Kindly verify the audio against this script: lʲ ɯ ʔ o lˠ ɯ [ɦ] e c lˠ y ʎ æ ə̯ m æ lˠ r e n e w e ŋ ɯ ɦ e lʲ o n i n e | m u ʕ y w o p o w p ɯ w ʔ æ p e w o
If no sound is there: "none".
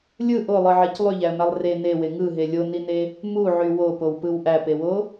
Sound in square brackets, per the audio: ʕ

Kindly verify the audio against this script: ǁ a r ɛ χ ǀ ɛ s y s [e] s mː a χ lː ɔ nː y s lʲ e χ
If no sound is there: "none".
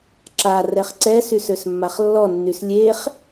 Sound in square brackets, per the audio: ø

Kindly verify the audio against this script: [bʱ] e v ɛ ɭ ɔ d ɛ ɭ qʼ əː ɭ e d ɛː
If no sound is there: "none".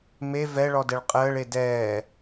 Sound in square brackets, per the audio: m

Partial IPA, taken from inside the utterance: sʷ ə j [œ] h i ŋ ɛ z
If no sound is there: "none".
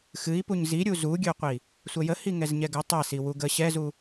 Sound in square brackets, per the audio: ə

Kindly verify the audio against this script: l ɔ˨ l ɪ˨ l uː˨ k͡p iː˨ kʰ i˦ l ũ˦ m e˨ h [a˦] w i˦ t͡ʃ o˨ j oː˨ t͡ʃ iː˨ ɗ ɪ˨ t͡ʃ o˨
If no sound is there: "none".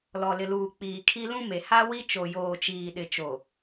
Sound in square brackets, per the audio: a˦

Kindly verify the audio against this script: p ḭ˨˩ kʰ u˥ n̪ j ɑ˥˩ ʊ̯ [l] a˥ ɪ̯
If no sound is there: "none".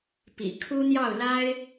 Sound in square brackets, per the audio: l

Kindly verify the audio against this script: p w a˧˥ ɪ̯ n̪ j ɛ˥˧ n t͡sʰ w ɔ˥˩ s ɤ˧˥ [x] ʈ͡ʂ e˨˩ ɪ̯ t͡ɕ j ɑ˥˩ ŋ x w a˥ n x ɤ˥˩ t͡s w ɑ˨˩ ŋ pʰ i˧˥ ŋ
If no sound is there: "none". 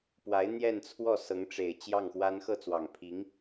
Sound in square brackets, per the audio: ŋ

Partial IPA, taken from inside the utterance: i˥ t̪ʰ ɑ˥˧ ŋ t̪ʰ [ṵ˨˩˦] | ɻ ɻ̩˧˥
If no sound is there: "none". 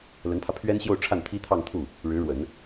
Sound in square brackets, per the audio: u˥˩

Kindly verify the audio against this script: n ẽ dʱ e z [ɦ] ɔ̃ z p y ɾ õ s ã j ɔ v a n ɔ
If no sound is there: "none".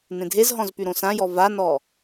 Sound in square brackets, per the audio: ɦ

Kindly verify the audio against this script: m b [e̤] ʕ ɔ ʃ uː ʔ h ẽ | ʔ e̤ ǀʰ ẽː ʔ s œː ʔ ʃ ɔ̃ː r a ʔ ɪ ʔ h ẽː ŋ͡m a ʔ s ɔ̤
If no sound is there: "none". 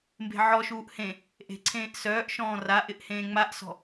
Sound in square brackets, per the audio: e̤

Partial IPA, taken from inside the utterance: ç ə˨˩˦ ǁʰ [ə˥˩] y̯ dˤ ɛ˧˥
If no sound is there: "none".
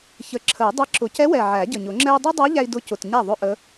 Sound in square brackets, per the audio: ə˨˩˦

